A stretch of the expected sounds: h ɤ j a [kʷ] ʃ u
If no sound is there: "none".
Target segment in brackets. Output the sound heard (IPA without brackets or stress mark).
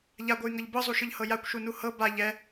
kʷ